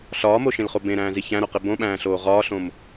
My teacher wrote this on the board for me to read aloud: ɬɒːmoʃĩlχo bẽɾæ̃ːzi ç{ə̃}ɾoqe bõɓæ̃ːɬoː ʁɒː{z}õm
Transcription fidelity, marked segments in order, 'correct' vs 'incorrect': incorrect: æ̃, incorrect: ɬ

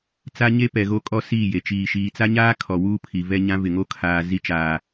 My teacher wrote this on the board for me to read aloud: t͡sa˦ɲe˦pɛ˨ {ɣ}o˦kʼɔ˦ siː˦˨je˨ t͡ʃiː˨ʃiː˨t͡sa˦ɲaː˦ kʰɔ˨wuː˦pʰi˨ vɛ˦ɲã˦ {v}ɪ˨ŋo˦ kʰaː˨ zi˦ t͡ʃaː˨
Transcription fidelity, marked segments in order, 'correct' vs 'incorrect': correct, correct

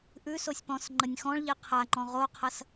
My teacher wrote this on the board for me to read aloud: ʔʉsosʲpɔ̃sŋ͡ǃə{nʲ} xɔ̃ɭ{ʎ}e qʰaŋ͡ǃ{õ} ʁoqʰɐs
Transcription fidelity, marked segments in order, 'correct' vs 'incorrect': correct, correct, incorrect: ɔ̃

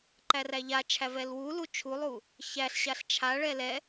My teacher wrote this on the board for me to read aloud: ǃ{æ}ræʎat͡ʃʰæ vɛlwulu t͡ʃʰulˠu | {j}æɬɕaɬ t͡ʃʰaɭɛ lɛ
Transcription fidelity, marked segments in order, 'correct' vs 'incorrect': correct, incorrect: ç

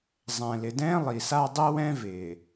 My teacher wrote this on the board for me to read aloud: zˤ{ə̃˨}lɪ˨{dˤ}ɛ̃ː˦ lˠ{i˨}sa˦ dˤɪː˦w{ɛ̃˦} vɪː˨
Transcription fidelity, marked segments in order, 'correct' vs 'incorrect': incorrect: ɛ̃˨, incorrect: d, correct, correct

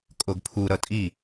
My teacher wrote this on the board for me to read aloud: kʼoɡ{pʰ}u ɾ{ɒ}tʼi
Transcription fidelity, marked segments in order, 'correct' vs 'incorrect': correct, incorrect: ʌ

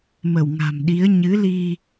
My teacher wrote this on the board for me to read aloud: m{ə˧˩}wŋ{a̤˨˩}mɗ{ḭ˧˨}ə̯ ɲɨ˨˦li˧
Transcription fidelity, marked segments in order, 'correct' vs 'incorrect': correct, correct, incorrect: i˨˦

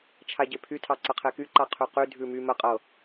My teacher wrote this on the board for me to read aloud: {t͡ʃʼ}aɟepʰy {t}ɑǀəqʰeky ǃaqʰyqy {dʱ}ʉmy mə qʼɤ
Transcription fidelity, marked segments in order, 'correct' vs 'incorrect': incorrect: t͡ʃʰ, incorrect: tʰ, correct

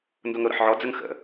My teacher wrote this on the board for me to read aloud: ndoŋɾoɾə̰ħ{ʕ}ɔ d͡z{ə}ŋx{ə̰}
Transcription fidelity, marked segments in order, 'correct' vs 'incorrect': correct, correct, correct

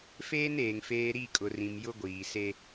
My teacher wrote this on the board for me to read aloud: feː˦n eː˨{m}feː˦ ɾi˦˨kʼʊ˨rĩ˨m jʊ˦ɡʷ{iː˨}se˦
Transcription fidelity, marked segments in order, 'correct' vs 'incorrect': incorrect: ŋ, correct

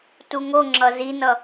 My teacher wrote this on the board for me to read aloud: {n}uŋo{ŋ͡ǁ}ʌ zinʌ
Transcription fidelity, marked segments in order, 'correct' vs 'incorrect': incorrect: t, correct

